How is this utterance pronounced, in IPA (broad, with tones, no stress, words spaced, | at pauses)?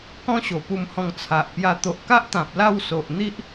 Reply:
kɔ̃˦ɕo˨˩pu˧mhɔ̃˧ŋ t͡sʰa˨ʔpja˧ t̪o˨ʔka˦ʔt̪ã˨p̚ la˥˧wso˨ʔ n̪i˦ʔ